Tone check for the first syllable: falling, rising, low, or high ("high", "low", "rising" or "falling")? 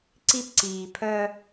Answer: high